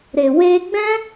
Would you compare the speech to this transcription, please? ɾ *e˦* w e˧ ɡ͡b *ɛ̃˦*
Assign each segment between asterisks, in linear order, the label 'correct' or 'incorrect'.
incorrect: e˨, correct

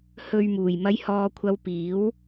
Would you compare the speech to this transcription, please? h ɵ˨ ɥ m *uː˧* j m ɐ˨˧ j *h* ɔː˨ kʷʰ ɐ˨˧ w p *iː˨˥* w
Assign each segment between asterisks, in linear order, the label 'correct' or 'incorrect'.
incorrect: uː˨˩, correct, correct

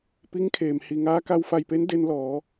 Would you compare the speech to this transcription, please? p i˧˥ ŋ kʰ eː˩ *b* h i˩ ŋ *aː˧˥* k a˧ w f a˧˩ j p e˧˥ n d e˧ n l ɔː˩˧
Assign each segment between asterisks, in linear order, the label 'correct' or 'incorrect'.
incorrect: m, correct

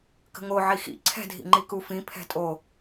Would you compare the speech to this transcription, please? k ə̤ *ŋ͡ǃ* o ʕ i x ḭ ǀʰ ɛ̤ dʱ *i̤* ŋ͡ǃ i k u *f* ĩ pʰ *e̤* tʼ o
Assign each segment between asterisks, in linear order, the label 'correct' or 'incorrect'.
incorrect: ŋ, incorrect: ḭ, correct, incorrect: ɛ̤

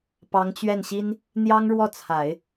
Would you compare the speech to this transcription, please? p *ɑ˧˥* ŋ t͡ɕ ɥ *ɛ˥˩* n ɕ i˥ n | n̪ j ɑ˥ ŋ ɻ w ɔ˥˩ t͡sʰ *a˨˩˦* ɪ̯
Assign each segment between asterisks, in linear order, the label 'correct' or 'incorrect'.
correct, correct, correct

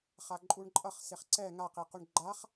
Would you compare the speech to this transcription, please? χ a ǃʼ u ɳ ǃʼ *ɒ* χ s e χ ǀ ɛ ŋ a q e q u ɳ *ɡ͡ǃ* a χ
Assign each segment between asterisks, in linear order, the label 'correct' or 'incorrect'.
incorrect: ʌ, correct

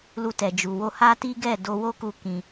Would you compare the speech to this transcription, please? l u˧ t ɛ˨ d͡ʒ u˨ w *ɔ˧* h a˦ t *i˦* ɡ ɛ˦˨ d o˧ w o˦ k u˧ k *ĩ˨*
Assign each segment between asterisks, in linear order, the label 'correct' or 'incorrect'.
incorrect: o˧, correct, incorrect: ĩ˧

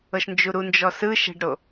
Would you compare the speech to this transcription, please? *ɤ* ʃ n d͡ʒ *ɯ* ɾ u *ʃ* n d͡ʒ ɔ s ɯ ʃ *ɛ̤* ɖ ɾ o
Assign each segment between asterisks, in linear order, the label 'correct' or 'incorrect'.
correct, incorrect: u, incorrect: none, correct

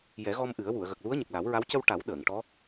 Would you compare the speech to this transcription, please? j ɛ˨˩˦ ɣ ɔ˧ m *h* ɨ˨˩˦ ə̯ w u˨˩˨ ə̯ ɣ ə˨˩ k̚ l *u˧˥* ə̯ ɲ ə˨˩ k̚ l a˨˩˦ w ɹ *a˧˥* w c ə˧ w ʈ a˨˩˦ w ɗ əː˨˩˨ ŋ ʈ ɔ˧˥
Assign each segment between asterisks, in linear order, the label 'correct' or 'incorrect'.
incorrect: ʔ, correct, correct

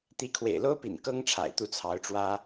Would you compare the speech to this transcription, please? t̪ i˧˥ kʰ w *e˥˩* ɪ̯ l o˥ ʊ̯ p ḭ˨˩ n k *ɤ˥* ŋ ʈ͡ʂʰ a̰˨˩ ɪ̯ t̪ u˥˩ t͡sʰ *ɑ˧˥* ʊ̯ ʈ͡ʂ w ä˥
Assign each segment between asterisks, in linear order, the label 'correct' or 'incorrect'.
incorrect: ḛ˨˩, correct, correct

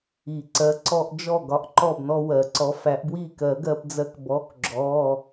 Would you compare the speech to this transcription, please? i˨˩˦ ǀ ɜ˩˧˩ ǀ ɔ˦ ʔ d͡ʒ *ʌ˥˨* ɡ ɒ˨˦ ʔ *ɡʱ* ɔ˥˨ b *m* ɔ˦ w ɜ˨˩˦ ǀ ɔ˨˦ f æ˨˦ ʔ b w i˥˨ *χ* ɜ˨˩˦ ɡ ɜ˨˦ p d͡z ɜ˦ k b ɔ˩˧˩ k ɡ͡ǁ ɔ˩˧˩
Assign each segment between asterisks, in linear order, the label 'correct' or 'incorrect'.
incorrect: ɔ˥˨, incorrect: ǃ, incorrect: n, incorrect: k

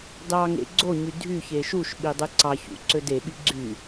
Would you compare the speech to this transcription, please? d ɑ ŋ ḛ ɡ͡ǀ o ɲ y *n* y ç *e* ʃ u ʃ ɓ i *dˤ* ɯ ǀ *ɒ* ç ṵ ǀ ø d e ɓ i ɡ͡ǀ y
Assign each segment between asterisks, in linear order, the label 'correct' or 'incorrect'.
incorrect: dʱ, correct, correct, incorrect: ɑ

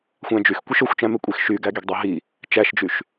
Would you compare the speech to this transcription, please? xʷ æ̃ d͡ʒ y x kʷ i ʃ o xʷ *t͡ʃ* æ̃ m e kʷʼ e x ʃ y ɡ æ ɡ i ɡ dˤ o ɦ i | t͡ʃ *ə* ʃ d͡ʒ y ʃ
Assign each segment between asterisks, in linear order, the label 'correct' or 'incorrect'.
correct, incorrect: æ

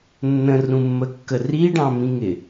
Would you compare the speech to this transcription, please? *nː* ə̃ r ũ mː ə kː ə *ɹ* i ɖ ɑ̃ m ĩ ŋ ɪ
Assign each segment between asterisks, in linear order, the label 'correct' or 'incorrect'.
correct, incorrect: r

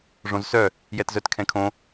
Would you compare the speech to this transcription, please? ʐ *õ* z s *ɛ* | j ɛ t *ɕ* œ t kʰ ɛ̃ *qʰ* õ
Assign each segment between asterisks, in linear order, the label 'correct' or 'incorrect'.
correct, incorrect: œ, incorrect: z, incorrect: kʰ

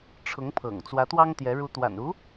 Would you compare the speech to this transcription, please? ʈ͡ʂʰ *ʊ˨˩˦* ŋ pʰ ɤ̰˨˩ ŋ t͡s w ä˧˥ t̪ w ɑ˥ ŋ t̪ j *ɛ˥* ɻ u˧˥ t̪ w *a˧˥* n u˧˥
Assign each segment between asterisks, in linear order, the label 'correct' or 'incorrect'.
incorrect: ʊ˧˥, incorrect: ɛ˧˥, incorrect: a̰˨˩

